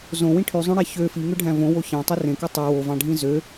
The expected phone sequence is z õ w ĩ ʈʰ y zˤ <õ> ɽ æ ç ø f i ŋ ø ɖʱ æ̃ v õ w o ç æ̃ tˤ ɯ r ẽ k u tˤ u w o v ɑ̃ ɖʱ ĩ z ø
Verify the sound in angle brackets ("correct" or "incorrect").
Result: correct